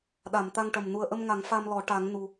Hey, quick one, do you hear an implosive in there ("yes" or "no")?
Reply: yes